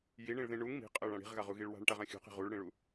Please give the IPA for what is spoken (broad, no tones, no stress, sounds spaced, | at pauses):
j i ɳ ĩ ɭ ð ĩ ɳ u ŋ m i̤ qʼ ɜ ɭ ã ɽ i̤ ʁ ɣ a ʁ u ɣ i ɭ w a̤ ɳ ʈ a ʁ ã xʲ ṳ q i̤ ʁ u ɭ ɽ ĩ ɭ u